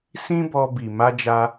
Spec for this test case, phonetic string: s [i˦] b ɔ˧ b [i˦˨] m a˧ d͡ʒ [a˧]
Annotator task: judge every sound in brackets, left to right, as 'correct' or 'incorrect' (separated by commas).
incorrect, incorrect, correct